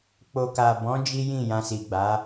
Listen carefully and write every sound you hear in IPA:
k͡p o˨ k a˨ b ɔ̃˨˦ d͡ʒ i˦ j ĩ˦˨ j ã˧ s i˨ ɡ͡b a˨˦

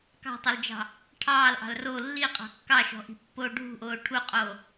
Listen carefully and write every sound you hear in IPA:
k ɑ̤ tˤ o l d͡ʒ ɑ̤ | ʈʰ ɑː l ʔ ɑ̤ l r o lː i qʼ ɑ̤ kː ɑ ʃ ɔ̤ ʔ i̤ pː o ɖʱ ṳ ʔ oː ʈʰ u qʼ oː

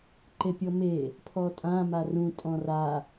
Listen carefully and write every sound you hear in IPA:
ǃ e pʲ ɔ m e | pʰ ɔ tʼ ã m a r ũ tʼ ɔ̃ r a

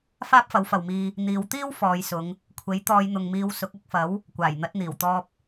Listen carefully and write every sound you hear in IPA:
f aː˥ p̚ f ɐ˨˥ w f ɐ˨ w m iː˧ | n̪ iː˨˧ w t̪ iː˥ w f ɔː˨˧ j s ʊ˨˧ ŋ | kʷʰ e˨˥ j t̪ ɔː˨˧ j n̪ ʊ˨ ŋ m iː˧ w s ʊ˨˥ k̚ ɐ˧ k̚ f ɐ˨˥ w | kʷ aː˨˩ j n̪ ɐ˨˥ t̚ n̪ iː˨˩ w t̪ ɔː˧ p̚

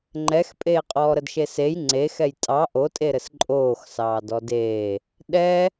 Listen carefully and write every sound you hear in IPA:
ŋ͡ǃ ɛ x pʼ eː qʼ ɔː ɾ ə d ʃ e s e j ŋ͡ǀ e x ɛ j tʼ ɑ ʔ o tʼ e ɾ ɘ s ǃʼ oː x s ɑː d ɔ d eː | ɗ ɛ

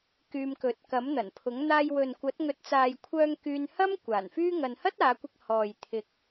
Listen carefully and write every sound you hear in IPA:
k yː˧ m k ɵ˨ t̚ k ɐ˨˥ m n̪ ɐ˨˩ n pʰ ʊ˨˥ ŋ n̪ aː˧ j w ɵ˨ n kʷ ɐ˨˥ t̚ ŋ ɵ˨ t̚ t͡s aː˨ j kʷʰ œː˧ ŋ k yː˧ n h ɐ˥ m kʷ aː˨˩ n f yː˥ ŋ ɐ˧ n h ɐ˥ t̚ aː˨˧ kʷ ɪ˧ k̚ h ɔː˨ j t̪ʰ ɪ˨ k̚

